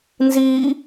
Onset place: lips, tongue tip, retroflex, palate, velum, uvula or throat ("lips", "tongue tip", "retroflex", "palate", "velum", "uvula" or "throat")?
tongue tip